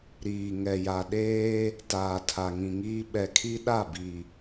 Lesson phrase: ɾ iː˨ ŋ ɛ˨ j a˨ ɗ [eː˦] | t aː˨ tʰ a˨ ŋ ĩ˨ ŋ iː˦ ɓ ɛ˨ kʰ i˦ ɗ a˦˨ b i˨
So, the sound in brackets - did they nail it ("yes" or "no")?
yes